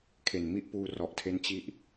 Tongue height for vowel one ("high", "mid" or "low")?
mid